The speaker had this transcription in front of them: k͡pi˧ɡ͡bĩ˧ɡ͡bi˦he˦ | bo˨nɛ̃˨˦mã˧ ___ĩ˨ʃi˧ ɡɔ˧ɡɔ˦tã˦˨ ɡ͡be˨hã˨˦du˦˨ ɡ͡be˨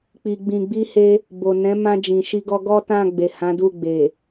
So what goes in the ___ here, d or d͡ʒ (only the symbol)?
d͡ʒ